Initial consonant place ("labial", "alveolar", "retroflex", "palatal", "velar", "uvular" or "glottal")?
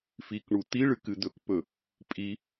labial